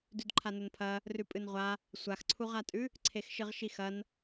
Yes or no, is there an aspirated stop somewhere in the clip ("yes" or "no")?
yes